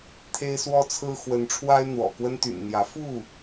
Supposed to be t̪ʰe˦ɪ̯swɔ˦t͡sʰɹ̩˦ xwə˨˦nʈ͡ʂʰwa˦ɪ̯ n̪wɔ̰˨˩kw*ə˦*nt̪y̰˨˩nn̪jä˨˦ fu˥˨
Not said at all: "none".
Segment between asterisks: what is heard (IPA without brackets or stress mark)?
ə˦